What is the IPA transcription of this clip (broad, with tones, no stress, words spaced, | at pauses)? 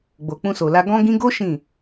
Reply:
ɡ͡bo˨k͡pũ˧so˨la˧ ɡɔ̃˧ɡĩ˧ɡo˦ ʃĩ˦˨